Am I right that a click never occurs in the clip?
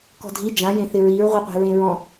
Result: yes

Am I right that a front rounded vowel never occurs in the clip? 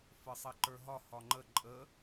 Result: yes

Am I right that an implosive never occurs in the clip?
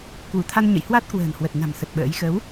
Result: no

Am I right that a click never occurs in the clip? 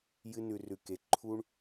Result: no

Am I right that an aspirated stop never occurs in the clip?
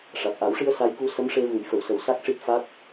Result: yes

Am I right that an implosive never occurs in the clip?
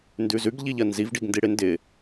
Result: yes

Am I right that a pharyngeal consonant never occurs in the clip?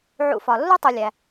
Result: no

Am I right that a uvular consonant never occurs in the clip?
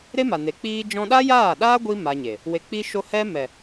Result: yes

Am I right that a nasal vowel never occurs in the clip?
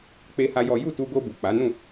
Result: no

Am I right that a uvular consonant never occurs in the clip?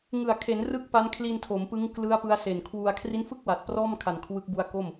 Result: yes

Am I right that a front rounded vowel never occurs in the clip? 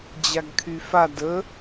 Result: no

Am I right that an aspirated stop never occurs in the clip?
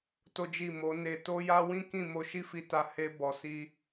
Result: yes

